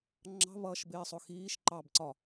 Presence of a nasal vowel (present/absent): absent